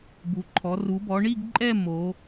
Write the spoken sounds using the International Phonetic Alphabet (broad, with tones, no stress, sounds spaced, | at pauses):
b u˩˧ ǃʰ ɔ˩˧ r u˩˧ b ɔ˩˧ ɳ i˥˧ ɡ ǃʼ ɛ˥˧ m o˩˧